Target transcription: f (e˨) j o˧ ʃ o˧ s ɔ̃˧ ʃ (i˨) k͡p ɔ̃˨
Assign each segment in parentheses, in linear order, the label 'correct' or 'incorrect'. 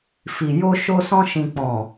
incorrect: i˨, incorrect: ĩ˨

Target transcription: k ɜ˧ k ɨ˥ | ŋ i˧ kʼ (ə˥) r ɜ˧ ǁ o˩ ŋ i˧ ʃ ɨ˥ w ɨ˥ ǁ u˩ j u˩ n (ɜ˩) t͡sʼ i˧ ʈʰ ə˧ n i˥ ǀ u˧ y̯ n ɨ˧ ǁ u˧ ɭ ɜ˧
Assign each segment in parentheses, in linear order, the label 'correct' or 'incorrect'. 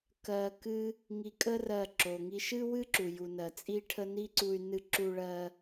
correct, correct

